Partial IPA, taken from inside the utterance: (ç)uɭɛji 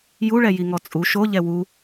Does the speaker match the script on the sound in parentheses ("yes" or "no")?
no